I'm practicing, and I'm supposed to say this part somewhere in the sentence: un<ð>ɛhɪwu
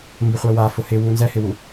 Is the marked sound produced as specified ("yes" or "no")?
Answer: no